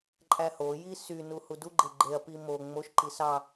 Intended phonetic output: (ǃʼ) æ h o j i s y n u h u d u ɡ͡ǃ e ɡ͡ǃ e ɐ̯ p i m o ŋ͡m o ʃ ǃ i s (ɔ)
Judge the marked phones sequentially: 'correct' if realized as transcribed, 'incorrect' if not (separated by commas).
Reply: correct, incorrect